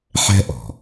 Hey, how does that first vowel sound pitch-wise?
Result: high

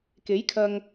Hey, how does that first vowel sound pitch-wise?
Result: rising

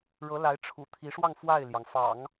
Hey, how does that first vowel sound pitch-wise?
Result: rising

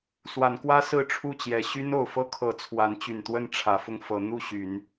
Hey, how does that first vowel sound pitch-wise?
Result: rising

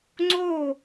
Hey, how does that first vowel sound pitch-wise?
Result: falling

